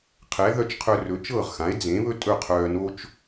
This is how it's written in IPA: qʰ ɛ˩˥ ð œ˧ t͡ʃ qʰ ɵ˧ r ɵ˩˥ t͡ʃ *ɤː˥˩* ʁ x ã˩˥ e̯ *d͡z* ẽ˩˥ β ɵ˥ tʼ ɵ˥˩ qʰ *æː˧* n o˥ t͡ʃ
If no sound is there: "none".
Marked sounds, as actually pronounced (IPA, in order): ɤː˥˩, d͡z, œː˧

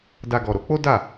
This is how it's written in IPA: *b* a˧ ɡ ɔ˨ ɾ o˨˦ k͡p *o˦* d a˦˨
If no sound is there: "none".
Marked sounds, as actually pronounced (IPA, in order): d, o˦

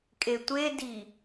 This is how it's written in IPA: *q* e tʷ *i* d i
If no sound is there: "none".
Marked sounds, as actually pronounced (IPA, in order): kʼ, e

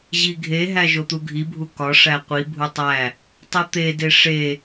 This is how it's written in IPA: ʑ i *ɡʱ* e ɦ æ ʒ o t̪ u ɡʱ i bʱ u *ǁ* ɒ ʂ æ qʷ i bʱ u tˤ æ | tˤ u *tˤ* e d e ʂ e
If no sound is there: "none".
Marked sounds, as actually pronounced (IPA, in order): ɡʱ, k, t̪

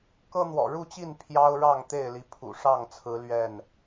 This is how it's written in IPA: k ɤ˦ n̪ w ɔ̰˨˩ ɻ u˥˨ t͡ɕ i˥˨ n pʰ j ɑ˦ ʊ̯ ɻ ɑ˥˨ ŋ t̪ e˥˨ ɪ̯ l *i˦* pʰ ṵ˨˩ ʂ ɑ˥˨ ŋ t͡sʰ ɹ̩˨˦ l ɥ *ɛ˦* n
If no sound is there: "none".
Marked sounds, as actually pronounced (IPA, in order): i˨˦, ɛ˥˨

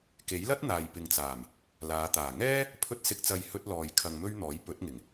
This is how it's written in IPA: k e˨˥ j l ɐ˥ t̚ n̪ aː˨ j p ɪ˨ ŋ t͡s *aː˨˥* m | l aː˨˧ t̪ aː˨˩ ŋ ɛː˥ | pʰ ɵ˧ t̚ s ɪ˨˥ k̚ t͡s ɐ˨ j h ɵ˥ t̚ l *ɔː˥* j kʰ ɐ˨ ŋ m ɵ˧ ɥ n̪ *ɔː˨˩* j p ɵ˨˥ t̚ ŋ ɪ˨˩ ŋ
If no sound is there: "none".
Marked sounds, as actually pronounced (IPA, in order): aː˨˩, ɔː˨, ɔː˨˥

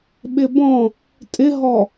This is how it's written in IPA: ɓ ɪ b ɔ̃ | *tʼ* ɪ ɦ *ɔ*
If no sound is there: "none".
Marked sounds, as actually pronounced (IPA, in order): tʼ, ɔ

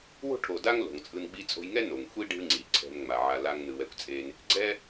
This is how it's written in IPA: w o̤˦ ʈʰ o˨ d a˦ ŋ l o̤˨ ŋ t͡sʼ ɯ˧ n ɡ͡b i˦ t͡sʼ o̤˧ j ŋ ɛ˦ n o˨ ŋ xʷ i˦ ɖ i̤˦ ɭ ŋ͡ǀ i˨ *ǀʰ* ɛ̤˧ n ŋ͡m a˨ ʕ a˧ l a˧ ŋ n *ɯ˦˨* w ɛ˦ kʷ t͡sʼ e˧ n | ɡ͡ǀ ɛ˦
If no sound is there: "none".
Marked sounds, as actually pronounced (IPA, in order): ǀʰ, ɯ˨

